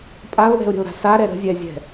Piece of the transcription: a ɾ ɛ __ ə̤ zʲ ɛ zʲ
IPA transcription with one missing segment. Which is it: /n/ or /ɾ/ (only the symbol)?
ɾ